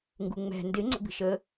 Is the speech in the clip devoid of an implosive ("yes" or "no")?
yes